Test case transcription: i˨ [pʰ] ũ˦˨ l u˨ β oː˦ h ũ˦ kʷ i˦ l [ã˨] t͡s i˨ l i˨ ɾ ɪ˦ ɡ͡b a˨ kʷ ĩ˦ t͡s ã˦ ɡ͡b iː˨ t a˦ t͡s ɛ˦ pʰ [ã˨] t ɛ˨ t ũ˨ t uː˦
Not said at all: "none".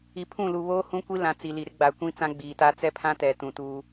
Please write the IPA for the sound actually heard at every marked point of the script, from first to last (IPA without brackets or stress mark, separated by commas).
pʰ, ã˨, ã˦